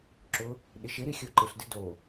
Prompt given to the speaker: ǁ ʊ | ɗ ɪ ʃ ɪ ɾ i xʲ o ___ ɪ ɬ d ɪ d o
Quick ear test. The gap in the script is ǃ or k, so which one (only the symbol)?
ǃ